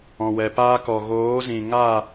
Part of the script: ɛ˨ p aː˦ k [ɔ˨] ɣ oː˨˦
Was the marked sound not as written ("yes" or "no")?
no